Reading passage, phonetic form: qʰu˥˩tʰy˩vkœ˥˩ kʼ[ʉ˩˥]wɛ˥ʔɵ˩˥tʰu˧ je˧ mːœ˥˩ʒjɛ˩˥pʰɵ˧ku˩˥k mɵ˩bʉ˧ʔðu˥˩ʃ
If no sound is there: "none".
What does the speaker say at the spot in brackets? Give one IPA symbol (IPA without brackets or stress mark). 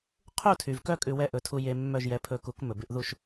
ʉ˧